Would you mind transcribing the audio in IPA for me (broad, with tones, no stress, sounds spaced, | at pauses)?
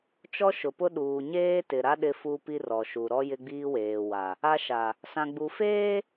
t͡ʃ ɔ˦ ʃ ʊ˨ p ʊ˦ ɗ uː˨ ɲ eː˦ t ɪ˨ ɾ a˦ ɗ ɪ˦ f u˦ p i˦ r ɔ˨ ʃ u˨ ɾ ɔ˦ j ɪ˦ ɡ͡b iː˦ w eː˨ w a˨ | a˦ ʃ a˨ | s ã˨ ɡ͡b u˨ f eː˦